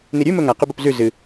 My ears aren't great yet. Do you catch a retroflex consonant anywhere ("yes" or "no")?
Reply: no